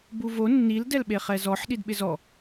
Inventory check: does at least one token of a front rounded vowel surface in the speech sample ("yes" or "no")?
no